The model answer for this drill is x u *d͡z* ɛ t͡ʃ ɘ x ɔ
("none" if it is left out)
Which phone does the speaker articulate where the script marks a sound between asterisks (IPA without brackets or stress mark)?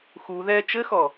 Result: ð